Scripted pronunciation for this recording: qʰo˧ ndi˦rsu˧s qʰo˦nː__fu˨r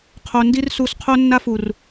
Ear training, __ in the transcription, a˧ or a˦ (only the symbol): a˦